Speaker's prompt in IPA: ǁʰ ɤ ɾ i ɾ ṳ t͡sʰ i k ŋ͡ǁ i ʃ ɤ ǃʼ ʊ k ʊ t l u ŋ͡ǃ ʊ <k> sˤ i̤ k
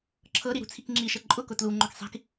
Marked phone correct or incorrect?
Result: correct